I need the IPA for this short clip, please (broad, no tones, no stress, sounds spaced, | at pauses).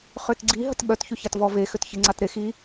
χ ø t ɡ͡ǀ i ɦ ə t ɓ œ t ç y ç a t v ɔ v e x ø t ç e ŋ͡ǀ a t ɾ e x i